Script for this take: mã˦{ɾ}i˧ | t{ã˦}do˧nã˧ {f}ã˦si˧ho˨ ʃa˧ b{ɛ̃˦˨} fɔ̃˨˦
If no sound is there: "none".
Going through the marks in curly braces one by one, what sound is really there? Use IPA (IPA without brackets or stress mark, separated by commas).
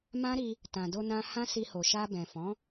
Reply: ɾ, ã˨, h, ɛ̃˨